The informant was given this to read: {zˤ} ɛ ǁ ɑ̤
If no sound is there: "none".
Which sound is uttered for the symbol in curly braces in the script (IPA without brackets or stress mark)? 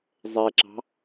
zˤ